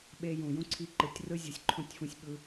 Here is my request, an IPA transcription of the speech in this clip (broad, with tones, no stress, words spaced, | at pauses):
ɓe˧jũ˨ jũ˦ǀʰi˧ǃɯ˨tʲrɯ˦ zʲɯ˨sʲǃʰõ˦˨tʲfũ˧sʲɓɯ˧